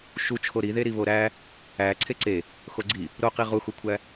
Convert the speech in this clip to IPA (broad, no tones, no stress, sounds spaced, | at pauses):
ʃ u t͡ʃʰ o ɾ i ð e ɾ i β o ɾ æ | æ ǀʰ e ǀ e | x o ɡ͡ǀ i | ɾ o q i ʁ u x u kʷʰ æ